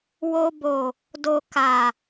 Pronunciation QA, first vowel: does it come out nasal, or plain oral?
oral